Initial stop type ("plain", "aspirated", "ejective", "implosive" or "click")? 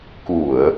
plain